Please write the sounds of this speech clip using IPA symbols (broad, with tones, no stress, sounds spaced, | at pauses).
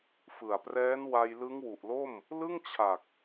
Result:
f ɯ˨˩ a̯ p r ɛː˦˥ n w a˧ j l ɯ˦˥ ŋ w u˨˩ ʔ l o˥˩ m | l ɯ˥˩ ŋ t͡ɕʰ a˨˩ k̚